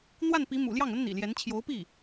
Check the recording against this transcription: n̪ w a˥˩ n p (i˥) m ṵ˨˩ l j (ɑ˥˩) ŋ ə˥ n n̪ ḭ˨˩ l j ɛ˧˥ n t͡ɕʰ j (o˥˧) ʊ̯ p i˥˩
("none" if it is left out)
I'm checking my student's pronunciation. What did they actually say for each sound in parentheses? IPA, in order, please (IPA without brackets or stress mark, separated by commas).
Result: i˧˥, ɑ˥˩, o˧˥